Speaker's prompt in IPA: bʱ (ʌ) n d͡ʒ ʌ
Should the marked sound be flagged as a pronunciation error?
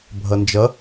no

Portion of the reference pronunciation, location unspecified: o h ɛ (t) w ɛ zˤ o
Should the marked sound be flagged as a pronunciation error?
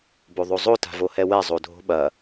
yes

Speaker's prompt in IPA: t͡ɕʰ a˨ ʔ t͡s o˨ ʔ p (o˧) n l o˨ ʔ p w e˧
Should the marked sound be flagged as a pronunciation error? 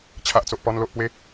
yes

